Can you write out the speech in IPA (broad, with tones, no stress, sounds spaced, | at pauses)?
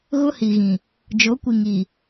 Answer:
ɣ ʊ˦ h i˨ ɣ ĩ˨ | d͡ʒ o˨˦ kʷ i˨ ŋ i˨